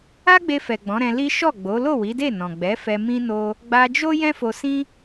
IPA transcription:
a˦ ɡ͡b e˧ f ɛ˨ ɡ͡b ɔ̃˨˦ ɾ ɛ̃˧ l i˦ ʃ ɔ˦˨ ɡ͡b o˨˦ l o˦˨ w i˨˦ d e˦˨ n ɔ̃˨ ɡ͡b ɛ˨˦ f ɛ˧ m ĩ˦ n o˦ | ɡ͡b a˧ d͡ʒ o˦ j ɛ̃˦ f o˧ s ĩ˦

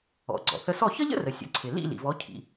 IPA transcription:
ɔ̰˩ ɡ͡ǀ ɔ̰˩ θ ə˧ s ɔ˥˩ ç ə˥ ʎ ə̰˥ r ə˩ sʲ ə̰˩˥ ǀʰ ɪ˩ l ḭ˥˩ l ḭ˩ v ɔ˩˥ cʰ ḭ˩

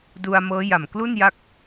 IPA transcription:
d u˧ a̯ m ɤː˦˥ j a˨˩ m k l u˥˩ n j a˦˥ k̚

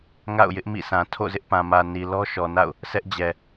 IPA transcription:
ŋ a̰˦˨ ʊ̯ j ɪ˦ ʔ m ḭ˦˨ s ã˨ tʰ o̰˦˨ z ɪ˦ ʔ p ã˨ m ä˨ n i˨ l ɔ˦ ʃ ɔ˨ n a̰˦˨ ʊ̯ | sʰ ɛ˦ ʔ d͡ʑ ɛ˨

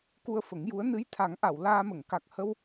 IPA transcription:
k u˧ ə̯ f ə˨˩˦ ŋ j u˧˥ ə̯ n ɨ˧˥ j t̪ʰ a˨˩˦ ŋ ʔ a˨˩˨ w l aː˧ m ə˨˩˨ ŋ k a˨˩ k̚ h ə˧ w

